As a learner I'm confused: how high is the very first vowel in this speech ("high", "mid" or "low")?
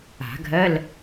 low